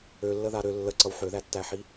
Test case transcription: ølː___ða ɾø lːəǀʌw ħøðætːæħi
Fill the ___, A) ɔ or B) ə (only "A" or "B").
B